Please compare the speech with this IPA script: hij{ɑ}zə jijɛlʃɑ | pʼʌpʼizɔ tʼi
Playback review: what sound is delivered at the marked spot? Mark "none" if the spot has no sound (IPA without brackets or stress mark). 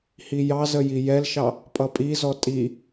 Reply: ɑ